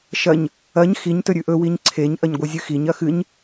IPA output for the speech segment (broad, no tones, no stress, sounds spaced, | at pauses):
ʃ ɐ ɲ | ɐ ɲ x i ɲ t ɵ ɾʲ ʉ ʔ ɵ w i ɲ ǀʰ e ɲ ʔ ɐ ɲ ɡʷ ɨ zʲ ɨ x i ɲ ɐ x ɨ ɲ